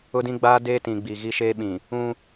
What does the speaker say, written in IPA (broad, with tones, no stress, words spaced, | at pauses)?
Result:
ʊ˦dĩ˦ɡ͡baː˦ deː˦tĩ˨ ɡ͡bi˨ɣi˦ʃeː˦ɓĩ˨ | ũ˦